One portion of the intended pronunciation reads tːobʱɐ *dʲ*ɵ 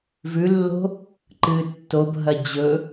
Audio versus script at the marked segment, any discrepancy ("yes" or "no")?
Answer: yes